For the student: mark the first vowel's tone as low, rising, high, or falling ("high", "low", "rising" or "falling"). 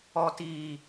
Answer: low